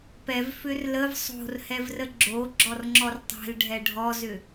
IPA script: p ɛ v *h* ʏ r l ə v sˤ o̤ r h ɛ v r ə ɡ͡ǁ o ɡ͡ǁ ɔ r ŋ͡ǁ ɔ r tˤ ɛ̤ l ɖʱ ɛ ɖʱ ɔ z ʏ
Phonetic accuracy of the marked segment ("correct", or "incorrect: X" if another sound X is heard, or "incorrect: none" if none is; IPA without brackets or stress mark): incorrect: f